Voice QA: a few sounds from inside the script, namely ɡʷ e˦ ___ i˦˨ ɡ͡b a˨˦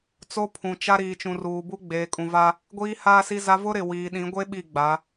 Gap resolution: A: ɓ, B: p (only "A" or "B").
A